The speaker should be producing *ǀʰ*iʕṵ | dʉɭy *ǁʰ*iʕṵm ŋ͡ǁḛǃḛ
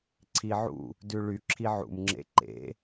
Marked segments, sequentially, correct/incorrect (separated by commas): correct, correct